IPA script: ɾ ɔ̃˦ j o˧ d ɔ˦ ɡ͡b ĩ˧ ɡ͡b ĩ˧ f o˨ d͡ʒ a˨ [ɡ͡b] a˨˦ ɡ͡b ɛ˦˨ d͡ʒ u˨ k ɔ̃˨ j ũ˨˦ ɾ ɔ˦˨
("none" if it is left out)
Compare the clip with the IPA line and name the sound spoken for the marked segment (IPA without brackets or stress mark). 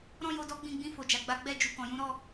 ɡ͡b